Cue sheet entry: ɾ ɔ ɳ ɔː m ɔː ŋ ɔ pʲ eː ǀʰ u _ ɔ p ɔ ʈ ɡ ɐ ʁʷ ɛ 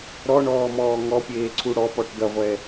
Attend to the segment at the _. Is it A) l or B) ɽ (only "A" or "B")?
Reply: B